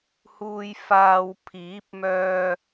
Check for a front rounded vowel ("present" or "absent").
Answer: present